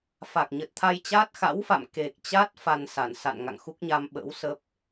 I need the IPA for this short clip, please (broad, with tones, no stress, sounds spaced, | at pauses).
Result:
f a˨˩ k̚ ɲ ə˨˩ t̚ t̪ʰ a˧ j t͡ɕ aː˦˥ t̚ x a̰˧˥ w f a̰˧˨ m k e˨˩ k̚ t͡ɕ a˦˥ t̚ f a˧ n s a˧˩ n s a̰˧˨ n ŋ a̰˧˨ ŋ x u˦˥ k̚ ɲ a˧ m ɓ ə̰ː˧˥ w s ə˦˥ p̚